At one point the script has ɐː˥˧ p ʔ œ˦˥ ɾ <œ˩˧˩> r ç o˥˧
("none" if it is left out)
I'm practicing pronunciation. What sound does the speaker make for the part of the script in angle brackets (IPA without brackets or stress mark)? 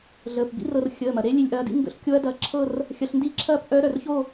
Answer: œ˩˧˩